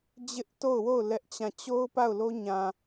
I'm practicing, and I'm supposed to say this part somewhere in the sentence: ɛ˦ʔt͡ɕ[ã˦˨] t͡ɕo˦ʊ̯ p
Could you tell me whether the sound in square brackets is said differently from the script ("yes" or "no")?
no